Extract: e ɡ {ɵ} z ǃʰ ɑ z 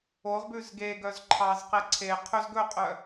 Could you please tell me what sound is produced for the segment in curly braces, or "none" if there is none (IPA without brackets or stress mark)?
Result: œ